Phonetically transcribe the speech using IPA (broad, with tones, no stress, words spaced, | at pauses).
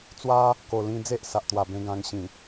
t͡swa˦ | ko˨˩ lĩ˧d͡ze˦ʔsa˨ʔt̪wa˨˩ bẽ˧ɡã˧ŋ ɕĩ˨˩